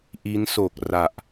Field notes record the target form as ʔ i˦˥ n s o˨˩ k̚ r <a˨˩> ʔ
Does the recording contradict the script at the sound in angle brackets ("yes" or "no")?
no